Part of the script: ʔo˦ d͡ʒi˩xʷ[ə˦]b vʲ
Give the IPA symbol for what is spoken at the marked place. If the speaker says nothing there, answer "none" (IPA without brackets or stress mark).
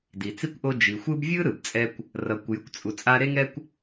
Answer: ɯ˦